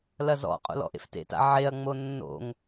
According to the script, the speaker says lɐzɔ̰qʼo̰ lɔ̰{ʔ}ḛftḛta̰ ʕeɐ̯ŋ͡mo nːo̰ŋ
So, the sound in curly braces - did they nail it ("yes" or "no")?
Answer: yes